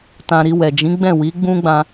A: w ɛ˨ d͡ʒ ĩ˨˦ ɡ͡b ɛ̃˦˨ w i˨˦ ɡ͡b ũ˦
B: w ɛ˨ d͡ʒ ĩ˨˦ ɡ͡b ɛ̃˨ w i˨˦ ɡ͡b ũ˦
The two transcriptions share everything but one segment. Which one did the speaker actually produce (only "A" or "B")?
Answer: A